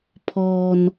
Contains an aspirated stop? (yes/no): yes